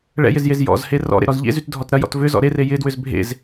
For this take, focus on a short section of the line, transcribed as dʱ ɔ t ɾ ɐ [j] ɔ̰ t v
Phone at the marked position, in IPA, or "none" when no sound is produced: j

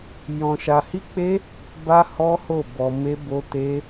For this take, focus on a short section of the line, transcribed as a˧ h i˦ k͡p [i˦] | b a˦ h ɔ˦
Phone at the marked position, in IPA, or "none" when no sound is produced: e˦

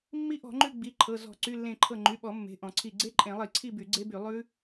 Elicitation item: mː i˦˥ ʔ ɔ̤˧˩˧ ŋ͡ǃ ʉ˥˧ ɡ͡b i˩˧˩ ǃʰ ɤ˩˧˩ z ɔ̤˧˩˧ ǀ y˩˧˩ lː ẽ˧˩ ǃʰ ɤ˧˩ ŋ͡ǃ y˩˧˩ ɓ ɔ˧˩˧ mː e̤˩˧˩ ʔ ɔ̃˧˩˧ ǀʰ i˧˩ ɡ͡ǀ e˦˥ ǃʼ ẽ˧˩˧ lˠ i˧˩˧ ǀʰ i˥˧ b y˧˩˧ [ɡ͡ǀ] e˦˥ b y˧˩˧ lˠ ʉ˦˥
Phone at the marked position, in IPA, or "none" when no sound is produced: ɡ͡ǀ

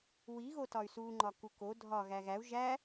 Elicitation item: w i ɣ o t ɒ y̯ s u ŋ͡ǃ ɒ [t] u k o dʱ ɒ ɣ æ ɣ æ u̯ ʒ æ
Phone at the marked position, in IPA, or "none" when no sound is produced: k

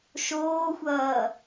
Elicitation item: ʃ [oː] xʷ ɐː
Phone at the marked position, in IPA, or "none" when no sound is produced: oː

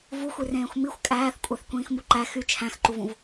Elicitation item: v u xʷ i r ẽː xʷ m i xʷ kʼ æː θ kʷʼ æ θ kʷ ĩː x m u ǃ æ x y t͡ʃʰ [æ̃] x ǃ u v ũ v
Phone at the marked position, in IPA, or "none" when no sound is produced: æ̃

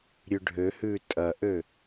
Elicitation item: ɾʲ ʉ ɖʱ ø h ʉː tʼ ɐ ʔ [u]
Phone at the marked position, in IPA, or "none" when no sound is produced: ø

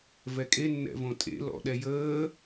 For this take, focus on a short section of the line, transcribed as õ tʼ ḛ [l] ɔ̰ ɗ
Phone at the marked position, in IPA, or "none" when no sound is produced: l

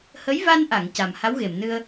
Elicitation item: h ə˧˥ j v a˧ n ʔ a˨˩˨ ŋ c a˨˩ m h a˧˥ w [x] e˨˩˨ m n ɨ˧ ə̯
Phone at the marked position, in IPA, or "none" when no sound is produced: ɣ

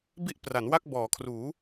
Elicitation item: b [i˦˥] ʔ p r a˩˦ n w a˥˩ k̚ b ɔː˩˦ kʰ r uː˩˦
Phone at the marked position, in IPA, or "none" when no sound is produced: i˥˩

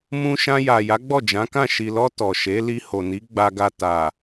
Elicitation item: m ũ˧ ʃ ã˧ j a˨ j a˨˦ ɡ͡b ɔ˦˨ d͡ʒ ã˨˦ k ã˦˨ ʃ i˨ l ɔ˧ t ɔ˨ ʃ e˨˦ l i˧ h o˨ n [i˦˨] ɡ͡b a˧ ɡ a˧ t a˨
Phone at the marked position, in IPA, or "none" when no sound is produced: i˨˦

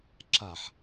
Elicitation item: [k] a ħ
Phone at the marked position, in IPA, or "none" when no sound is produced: ǁ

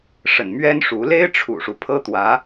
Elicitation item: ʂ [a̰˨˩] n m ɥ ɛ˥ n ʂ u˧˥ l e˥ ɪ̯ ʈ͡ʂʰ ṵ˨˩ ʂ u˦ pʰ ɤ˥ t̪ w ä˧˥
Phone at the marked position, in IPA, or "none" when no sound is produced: ə̰˨˩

